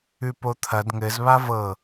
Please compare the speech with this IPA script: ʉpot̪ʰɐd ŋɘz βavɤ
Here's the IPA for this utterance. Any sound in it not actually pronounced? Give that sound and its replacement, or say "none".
none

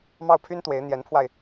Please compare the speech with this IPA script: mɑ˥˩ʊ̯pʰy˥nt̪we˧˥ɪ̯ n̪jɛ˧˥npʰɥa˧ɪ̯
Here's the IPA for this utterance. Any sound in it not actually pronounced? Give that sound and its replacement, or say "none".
ɥ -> w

